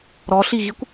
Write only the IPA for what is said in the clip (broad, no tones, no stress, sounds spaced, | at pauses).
ɾ ɔ ɬ i ɣ i kʷ